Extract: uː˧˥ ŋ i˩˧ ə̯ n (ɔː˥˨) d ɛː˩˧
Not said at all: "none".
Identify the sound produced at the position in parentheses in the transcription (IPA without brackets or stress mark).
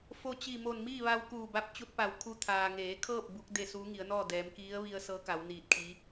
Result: ɔː˥˨